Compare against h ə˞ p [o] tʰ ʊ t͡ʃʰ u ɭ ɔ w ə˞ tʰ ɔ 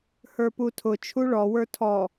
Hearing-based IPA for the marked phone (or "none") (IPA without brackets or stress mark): u